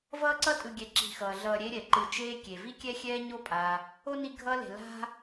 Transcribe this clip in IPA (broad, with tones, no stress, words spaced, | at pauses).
vʌː˦ǀʌ˦tʼɯ˨ɡʲɛ˨ ǁi̤˨xʌː˩ɮʌː˨ ɾʲe˦ɾʲɛ˩ǃɯ˨ t͡ʃeː˦kʲe˩vi˥kʲɛ˥ xʲɛː˦ ɲo˦pʼa˩ | o˥ni˦ɡʱʌː˦le̤˨ la̤˥